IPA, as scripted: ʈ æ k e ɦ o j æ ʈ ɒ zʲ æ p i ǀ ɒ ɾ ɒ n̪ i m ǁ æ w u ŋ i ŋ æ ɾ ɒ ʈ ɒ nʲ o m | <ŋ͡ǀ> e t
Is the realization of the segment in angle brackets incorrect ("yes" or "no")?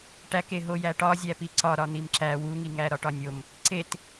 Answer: yes